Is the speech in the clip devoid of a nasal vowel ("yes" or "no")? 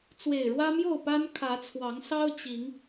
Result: yes